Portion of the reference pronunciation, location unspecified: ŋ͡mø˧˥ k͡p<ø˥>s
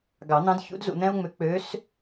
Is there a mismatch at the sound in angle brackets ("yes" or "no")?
yes